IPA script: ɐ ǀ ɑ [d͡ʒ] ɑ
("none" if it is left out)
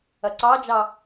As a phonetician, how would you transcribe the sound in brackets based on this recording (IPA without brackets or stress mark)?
d͡ʒ